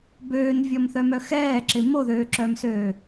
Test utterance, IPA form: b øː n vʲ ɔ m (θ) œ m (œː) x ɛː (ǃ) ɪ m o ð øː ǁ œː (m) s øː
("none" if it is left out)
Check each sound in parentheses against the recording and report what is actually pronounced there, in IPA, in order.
θ, œ, ǁ, m

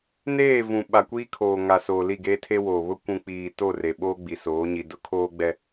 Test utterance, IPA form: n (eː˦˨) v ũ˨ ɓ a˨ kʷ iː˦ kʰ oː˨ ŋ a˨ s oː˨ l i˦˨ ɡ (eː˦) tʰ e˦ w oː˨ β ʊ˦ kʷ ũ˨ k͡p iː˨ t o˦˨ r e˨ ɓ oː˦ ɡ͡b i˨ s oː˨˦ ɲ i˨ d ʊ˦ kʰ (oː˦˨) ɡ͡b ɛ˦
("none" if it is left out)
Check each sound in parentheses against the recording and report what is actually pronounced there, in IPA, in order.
eː˦˨, eː˦, oː˦

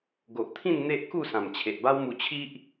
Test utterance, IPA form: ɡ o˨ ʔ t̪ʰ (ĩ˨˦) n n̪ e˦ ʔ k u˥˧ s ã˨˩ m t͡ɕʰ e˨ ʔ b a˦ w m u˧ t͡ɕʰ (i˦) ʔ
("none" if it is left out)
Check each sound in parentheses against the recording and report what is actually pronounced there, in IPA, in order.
ĩ˥˧, i˦

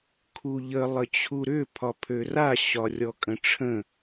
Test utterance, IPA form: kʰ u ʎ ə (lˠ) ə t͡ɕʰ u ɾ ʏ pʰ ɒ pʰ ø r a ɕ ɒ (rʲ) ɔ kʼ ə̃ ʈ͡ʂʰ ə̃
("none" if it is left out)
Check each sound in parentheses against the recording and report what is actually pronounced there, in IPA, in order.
lˠ, rʲ

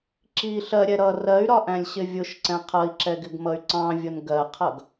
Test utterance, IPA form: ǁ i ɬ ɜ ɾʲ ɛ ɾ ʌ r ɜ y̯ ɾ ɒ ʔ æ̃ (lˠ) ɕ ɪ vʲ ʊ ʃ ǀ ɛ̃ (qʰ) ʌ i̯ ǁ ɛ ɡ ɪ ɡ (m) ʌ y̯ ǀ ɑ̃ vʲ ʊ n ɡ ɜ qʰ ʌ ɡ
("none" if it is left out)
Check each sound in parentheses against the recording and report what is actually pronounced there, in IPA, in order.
lʲ, qʰ, m

